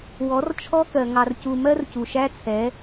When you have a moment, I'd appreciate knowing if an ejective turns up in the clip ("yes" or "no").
no